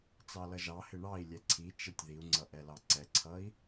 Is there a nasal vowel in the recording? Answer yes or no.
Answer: no